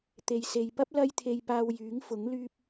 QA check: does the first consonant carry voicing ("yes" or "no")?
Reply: no